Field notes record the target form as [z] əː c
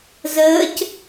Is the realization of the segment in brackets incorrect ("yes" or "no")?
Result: no